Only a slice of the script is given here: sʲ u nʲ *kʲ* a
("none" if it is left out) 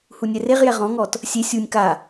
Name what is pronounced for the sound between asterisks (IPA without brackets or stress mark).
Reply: k